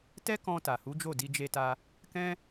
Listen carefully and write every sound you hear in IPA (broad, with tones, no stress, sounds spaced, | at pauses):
t ɛ˦ k ɔ̃˧ t a˨ h u˨˦ d͡ʒ o˦˨ d i˧ d͡ʒ e˧ t a˧ | k ɛ̃˦